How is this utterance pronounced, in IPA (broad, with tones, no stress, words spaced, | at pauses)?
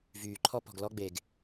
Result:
vyː˨ ǃʰɔ˦ pɔ̤˨ɡlɔ˦ɡ͡be˨ɡ